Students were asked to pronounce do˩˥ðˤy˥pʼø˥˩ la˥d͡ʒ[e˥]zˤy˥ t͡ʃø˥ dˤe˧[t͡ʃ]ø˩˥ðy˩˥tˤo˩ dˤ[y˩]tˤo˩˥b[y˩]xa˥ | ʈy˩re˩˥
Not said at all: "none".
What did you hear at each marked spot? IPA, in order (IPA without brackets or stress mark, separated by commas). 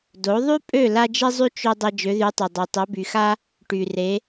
i˥, d͡ʒ, ø˩, y˩